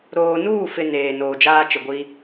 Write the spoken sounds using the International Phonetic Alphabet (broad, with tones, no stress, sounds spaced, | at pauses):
ɾ oː˨ n uː˦˨ f ɪ˨ n eː˨ n oː˨ d͡ʒ aː˦ t͡ʃ ɪ˨ ɡʷ i˦